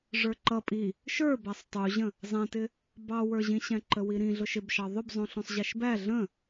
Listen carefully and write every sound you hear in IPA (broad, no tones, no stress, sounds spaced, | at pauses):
ʐ ə˞ ǃ ʌ pʼ i | ʃ ə˞ b æ sˤ tˤ u ʑ ə̃ | zˤ ɛ̃ t ɪ | b ɑ w ə˞ ʑ ĩ ɕ ɛ̃ ǃ ə w i ɾ ĩ ɮ ʊ ʃ ɪ b ʃ ɑ ðˤ ʊ b zˤ ũ ɬ ũ sˤ ʑ ɛ ʃ b æ ɮ ə̃